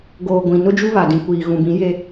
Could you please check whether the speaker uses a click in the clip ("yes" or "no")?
no